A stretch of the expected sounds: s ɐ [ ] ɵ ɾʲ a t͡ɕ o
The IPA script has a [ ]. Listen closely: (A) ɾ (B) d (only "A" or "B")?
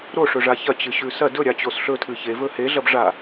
B